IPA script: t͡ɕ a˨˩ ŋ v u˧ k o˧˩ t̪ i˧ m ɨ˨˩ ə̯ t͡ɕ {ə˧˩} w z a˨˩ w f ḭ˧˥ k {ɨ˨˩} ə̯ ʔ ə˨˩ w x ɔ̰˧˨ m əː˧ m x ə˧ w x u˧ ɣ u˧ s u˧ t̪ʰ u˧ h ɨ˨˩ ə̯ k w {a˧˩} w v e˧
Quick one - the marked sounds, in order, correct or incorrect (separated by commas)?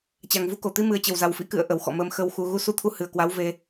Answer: correct, incorrect, incorrect